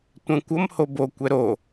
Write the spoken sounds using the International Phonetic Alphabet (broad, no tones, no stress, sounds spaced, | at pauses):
tʷ ɛ̃ kʷ ʌ m h o b o kʷ ɛ ɾ o